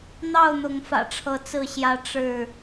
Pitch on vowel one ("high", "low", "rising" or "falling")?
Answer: falling